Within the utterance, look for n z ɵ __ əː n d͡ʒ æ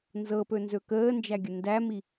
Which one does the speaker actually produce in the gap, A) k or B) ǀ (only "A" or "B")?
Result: A